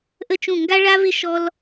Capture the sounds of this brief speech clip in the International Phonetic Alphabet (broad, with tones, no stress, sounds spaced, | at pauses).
ʔ ə˦ t͡ʃ ũ˦˨ ŋ ɡ a˦ ɭ a˦ v ɪ˦ ʃ ɔ˦ l